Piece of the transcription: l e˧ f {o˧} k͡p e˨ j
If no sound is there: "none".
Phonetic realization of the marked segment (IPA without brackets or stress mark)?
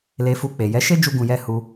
u˧